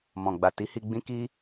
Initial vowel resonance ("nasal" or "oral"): nasal